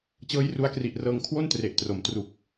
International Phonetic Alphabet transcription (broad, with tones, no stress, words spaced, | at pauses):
t͡ɕɤː˦˥jru˧a̯kri˨˩ʔrɤː˧ŋ kʰwo˥˩ntre˨˩ʔtro˩˦m tru˨˩k̚